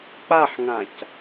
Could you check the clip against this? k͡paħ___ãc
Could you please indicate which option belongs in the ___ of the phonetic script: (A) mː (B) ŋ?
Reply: B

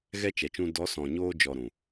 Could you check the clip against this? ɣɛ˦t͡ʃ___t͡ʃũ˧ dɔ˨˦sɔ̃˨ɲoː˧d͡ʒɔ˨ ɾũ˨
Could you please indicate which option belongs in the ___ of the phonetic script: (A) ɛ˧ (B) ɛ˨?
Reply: B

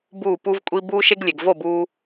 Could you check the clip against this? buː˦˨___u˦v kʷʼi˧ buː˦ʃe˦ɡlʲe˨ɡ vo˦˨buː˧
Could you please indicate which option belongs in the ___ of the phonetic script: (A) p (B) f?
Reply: A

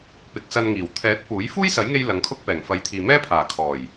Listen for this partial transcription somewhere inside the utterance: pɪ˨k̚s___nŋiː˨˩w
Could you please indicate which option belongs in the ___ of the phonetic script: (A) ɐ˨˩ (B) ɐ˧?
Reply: B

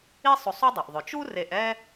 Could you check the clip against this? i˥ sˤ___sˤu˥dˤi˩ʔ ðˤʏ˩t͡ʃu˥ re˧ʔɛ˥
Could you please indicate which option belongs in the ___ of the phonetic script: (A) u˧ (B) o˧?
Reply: B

